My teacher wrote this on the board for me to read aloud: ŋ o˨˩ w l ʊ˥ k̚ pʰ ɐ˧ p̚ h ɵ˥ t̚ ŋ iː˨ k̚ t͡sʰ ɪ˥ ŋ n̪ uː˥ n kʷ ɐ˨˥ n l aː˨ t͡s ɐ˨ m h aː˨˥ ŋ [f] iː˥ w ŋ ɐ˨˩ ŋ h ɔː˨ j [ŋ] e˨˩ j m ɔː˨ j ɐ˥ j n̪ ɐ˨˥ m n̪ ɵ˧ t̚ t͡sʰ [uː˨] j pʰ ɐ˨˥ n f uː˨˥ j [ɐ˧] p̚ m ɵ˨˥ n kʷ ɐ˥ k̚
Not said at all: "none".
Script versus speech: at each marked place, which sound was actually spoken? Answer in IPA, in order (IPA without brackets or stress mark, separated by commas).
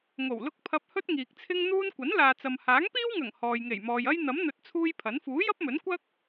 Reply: p, ŋ, uː˥, ɐ˥